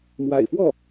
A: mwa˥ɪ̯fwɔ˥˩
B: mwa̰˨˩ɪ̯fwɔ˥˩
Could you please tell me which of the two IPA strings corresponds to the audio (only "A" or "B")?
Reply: B